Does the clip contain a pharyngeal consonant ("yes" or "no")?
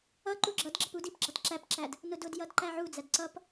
yes